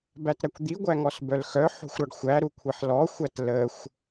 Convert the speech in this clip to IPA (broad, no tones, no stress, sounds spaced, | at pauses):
b æ t ɾ æ kʷ d̪ i ɡʷ æ ŋ ɔ s b œ l x œ ħ o̤ xʷ ɾ ɒ ɖ xʷ æ ɾ u kʷʰ i ħ l ɔ xʷ æ t l ə xʷ